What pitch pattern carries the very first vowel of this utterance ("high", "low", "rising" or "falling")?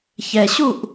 low